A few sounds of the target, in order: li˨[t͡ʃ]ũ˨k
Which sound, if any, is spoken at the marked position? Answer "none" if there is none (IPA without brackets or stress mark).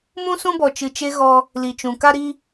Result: t͡ʃ